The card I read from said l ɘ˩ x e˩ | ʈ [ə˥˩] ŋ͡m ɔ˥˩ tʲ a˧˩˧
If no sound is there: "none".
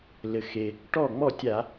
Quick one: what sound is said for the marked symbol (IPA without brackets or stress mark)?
ɔ˥˩